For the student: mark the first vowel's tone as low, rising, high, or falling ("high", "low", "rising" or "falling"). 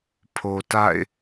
low